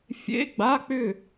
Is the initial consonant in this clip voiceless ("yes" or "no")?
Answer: yes